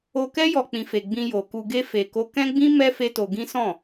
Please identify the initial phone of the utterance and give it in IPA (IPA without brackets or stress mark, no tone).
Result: o